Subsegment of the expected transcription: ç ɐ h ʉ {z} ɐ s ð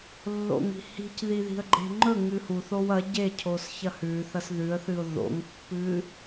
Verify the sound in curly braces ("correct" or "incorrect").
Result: incorrect